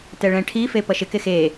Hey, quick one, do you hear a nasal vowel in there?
yes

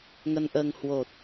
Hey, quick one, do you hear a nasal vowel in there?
no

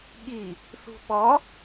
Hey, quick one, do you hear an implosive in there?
yes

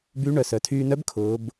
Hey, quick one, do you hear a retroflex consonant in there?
yes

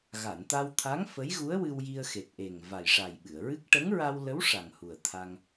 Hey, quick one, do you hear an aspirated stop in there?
yes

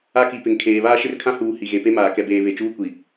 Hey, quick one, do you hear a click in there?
no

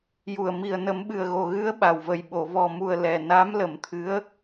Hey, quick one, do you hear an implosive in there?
yes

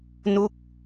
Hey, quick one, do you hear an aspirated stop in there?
no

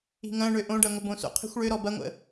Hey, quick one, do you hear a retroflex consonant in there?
yes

